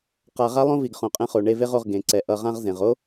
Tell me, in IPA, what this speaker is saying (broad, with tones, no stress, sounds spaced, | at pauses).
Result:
q a˧ ʁ a˦ lˠ õ˦ v i˨ ɡ χ õ˨ qʼ ɛ̃˧ χ o˨ ɳ e˧ v e˦ ʁ o˧ ʁ ɡ ẽ˨ ǀ ɛ˨ ʔ ʌ˧ ʁ ã˦ ʁ z ẽ˨ ʁ o˦